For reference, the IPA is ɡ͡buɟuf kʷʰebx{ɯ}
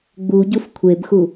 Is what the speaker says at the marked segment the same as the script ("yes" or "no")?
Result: no